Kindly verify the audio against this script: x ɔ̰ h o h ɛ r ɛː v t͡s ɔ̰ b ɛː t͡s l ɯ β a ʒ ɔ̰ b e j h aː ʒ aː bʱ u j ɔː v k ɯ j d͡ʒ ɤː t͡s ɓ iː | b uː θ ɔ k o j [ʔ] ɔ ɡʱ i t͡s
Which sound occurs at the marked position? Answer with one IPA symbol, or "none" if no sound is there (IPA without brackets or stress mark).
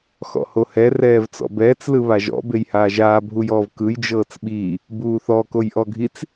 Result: ʔ